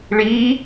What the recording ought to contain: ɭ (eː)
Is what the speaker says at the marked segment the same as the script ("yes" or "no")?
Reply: no